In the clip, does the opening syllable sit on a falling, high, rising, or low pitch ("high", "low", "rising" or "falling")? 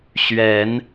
rising